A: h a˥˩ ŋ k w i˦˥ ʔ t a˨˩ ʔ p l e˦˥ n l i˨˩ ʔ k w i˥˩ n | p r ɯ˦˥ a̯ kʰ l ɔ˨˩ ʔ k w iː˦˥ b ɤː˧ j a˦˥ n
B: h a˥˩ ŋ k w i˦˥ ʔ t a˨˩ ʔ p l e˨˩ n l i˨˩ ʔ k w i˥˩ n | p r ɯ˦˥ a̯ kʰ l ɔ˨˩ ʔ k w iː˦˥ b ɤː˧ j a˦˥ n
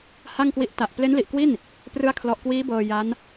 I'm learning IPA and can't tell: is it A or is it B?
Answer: A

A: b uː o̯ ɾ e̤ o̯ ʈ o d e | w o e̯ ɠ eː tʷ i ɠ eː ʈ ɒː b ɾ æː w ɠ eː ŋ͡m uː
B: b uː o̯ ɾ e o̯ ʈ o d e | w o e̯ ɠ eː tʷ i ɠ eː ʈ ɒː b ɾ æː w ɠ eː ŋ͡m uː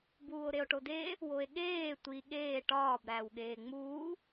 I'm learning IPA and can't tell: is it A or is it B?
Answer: B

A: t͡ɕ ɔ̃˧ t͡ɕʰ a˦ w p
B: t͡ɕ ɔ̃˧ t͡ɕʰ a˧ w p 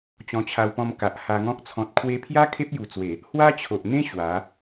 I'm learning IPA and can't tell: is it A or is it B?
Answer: B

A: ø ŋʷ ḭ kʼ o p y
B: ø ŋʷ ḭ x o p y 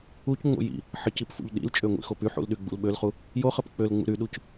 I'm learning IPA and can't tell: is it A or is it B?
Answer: B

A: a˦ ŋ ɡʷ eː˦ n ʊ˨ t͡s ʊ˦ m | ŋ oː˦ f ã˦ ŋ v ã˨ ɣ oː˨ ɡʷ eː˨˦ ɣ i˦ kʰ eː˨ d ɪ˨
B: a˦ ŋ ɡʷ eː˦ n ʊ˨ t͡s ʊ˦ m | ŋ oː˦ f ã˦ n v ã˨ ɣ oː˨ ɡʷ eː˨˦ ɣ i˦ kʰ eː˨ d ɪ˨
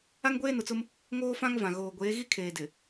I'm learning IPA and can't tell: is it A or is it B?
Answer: A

